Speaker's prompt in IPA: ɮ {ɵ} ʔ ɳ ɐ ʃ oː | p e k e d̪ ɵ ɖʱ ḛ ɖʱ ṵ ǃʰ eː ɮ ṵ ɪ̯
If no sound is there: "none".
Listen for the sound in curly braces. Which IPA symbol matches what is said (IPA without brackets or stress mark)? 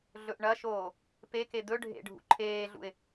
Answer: ɵ